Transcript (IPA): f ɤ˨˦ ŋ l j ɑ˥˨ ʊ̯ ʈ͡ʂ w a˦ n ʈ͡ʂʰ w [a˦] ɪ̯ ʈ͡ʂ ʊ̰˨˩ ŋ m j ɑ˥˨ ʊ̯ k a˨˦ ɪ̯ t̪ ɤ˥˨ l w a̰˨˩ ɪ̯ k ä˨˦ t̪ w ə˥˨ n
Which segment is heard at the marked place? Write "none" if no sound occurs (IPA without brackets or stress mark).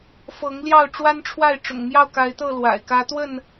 a˥˨